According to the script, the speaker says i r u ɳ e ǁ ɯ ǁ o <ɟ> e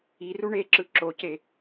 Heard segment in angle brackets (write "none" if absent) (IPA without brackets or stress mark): c